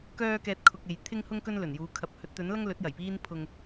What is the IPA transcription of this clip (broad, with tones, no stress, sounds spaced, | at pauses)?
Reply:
k œː˥ k ɛː˧ t̚ kʰ ʊ˨ k̚ e˨ j t̪ʰ ɪ˥ ŋ h ʊ˥ ŋ k ɵ˥ n l ɵ˨˩ n j uː˨˧ kʰ ɐ˨ p̚ h ɵ˨˥ t̚ t̪ ɵ˨˥ n l ɐ˥ ŋ l ɵ˨˥ t̚ j ɐ˨˩ j p iː˧ n pʰ ʊ˨ ŋ